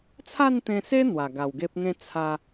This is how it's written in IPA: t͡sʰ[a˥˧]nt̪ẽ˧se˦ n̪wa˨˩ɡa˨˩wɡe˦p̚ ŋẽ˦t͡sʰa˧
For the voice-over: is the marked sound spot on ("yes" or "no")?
yes